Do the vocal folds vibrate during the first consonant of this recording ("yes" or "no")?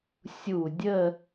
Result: no